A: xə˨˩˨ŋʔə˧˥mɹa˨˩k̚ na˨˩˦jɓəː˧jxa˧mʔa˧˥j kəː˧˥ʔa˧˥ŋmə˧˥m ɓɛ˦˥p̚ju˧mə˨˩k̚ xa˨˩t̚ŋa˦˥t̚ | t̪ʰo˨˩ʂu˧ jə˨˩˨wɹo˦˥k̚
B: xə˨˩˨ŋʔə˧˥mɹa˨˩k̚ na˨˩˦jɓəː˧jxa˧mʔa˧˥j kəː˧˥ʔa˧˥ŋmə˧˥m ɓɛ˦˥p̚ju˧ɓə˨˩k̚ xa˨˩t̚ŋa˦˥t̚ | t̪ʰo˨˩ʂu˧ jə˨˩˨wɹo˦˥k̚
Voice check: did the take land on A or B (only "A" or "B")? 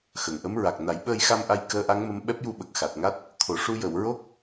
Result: B